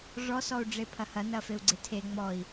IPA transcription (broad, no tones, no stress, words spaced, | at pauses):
ʐɔsɔu̯ ɖ͡ʐepʰɐhɐ nɐfeu̯ɡ͡ǀetʰe ŋ͡mɔi̯